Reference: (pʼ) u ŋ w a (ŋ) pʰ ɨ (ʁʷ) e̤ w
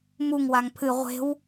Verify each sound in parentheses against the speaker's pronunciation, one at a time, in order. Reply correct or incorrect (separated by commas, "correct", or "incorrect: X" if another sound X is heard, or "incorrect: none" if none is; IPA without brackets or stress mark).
incorrect: m, correct, correct